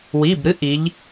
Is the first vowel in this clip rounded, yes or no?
no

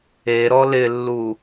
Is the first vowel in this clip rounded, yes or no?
no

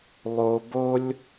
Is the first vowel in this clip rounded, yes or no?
yes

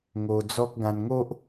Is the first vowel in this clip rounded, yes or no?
yes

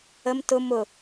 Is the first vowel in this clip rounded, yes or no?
no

